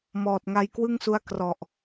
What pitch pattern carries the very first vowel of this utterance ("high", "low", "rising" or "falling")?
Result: low